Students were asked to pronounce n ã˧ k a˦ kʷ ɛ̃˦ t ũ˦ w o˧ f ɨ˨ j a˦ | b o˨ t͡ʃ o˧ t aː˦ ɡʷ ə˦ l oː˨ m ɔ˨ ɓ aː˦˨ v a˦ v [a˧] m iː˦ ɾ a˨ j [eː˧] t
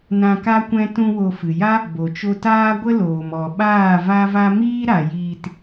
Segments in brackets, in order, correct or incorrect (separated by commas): incorrect, incorrect